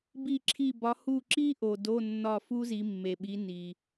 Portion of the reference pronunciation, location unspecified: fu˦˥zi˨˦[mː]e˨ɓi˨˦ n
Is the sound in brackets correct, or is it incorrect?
correct